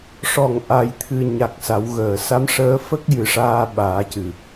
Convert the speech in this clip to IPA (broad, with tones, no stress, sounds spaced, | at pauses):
ʂ ɔ˨˩˨ ŋ ʔ a˨˩˨ j t̪ʰ ɨ˨˩ ɲ a˨˩ k̚ s a˨˩˦ w ɣ əː˨˩˨ s a˧˥ m ʂ əː˧˥ f ə˦˥ k̚ j ɨ˨˩ ʂ aː˧ ɓ aː˨˩˦ c ɨ˨˩